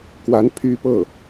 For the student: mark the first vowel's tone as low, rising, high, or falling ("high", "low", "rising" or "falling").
rising